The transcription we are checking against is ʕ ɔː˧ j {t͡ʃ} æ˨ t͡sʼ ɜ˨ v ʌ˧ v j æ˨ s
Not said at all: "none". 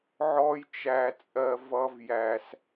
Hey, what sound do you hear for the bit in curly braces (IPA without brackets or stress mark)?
t͡ʃ